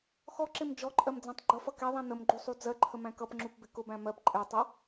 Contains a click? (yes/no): yes